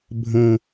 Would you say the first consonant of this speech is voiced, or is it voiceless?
voiced